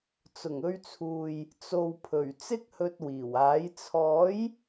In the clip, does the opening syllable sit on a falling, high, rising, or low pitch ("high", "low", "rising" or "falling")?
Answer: low